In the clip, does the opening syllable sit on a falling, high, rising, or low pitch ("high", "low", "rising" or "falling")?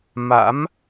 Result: rising